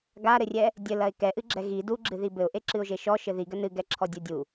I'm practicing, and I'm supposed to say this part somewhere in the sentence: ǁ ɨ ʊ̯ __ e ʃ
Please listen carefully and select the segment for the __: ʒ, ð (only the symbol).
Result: ʒ